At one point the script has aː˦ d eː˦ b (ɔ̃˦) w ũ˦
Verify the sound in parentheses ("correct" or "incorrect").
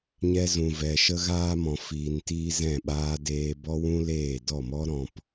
incorrect